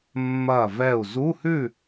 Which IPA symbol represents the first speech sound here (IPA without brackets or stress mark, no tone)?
mː